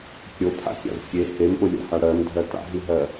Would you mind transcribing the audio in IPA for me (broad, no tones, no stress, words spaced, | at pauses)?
kʲopʰa̰kʲa̰v kʲe hemɓolʲa̰ha ɽɜmdʱɜ ta̰ɦiɦɜ